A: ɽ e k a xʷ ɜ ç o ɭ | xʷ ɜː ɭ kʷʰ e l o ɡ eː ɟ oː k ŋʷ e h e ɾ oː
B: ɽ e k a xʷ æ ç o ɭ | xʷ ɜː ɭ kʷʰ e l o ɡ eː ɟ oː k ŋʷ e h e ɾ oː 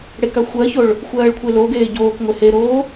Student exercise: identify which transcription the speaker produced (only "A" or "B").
A